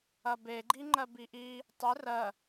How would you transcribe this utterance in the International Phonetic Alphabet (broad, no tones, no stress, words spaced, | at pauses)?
ɐbe ɡ͡ǃiŋ͡ǃɜbiʔi | tˤɪ rɜ